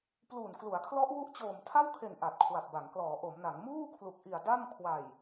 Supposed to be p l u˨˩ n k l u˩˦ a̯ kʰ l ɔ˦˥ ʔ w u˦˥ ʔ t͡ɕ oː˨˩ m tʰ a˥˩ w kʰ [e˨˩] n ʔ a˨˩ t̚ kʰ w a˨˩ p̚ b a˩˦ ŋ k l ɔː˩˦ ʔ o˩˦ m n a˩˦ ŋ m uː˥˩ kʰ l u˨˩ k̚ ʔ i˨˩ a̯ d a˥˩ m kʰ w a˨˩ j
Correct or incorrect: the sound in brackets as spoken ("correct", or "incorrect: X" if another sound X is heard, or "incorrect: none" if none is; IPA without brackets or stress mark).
correct